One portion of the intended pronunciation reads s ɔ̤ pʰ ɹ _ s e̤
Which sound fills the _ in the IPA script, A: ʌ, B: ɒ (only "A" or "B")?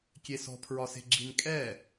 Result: B